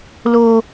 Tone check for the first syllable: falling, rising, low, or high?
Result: high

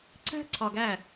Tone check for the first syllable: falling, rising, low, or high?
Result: high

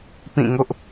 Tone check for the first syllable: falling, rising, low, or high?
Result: falling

